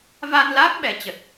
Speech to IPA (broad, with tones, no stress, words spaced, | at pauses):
va˧nla˦˥k̚ ɓɛ˨˦t͡ɕə˨˩t̚